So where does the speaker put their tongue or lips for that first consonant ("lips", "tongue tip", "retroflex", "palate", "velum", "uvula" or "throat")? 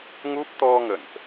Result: velum